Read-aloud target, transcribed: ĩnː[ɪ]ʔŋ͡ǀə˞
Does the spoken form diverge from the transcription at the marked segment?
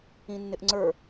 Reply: no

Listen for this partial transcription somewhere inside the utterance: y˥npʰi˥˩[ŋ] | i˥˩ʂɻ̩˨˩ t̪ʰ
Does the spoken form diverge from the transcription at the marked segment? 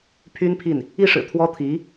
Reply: yes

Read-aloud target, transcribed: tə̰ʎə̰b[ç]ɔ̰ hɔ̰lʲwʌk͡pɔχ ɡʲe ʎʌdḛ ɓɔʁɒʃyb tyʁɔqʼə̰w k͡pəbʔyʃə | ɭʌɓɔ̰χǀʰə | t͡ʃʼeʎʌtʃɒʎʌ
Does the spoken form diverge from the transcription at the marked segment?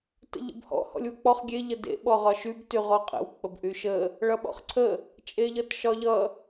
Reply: yes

